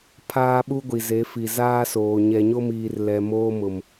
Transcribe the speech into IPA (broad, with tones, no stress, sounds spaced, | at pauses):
pʰ aː˦ ɓ u˦ ɡʷ i˨ z e˨˦ f i˨ z aː˦ s oː˨ ɲ ɛ˨ ɲ o˦ m iː˨ r l ɛ˨ m oː˦ m ʊ˨ m